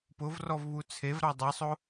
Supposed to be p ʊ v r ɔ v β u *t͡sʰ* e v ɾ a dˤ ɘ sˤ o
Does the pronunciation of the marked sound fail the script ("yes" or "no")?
no